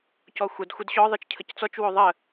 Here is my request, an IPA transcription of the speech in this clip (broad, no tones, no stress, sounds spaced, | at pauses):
c ɔ xʷ ə d xʷ ə d ɕ ɔ ðˤ ɯ t͡ʃ cʰ ə c t͡s ɔ t͡ʃ w o ðˤ ə